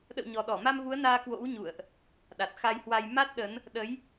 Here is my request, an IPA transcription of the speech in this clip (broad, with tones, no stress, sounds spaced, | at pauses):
ɗ ə̰˧˨ w ɲ ɔ˨˩ ɗ ɔ˧˩ m a˧ m v u˨˦ ə̯ n aː˧ k w o̰˧˥ w ɲ ṵ˧˨ ə̯ ʔ | ɗ a˨˩ t̚ x a˧ j h w a˧ j m a˦˥ t̚ ɗ ə˨˦ n | ɗ ə˨˦ j